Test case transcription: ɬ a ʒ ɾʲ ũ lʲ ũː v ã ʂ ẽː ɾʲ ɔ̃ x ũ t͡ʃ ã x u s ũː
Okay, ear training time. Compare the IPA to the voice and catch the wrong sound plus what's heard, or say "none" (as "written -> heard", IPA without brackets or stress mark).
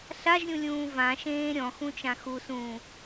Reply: ʂ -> ʃ